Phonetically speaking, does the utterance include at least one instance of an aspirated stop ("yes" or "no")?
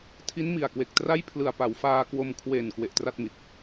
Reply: yes